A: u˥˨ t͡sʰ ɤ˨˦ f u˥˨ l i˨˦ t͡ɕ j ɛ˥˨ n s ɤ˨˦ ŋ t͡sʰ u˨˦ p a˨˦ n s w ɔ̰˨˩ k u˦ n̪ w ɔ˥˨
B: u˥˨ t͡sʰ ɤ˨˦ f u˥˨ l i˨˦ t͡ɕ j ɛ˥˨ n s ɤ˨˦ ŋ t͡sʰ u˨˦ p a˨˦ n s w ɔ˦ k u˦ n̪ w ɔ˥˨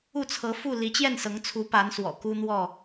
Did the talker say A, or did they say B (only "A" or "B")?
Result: A